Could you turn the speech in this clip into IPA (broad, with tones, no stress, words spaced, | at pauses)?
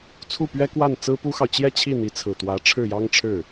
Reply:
t͡sʰu˥˩pɥɛ˥kwa˥˩n t͡sɹ̩˥pu˥xɑ˨ʊ̯ t͡ɕjɛ˥˧t͡ɕʰi˥˩ n̪i˧˥t͡sʰɹ̩˨˩t̪wä˧˥ ʈ͡ʂʰɻ̩˥˩jɑ˥ŋʈ͡ʂʰɻ̩˥˩